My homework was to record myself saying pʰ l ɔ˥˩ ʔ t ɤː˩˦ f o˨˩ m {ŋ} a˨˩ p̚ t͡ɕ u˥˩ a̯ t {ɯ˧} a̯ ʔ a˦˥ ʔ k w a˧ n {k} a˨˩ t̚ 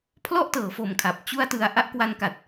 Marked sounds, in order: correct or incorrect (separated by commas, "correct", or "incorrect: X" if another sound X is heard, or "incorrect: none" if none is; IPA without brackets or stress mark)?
incorrect: kʰ, correct, correct